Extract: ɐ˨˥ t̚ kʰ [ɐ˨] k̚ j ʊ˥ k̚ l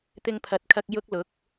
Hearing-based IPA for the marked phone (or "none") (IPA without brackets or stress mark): ɐ˧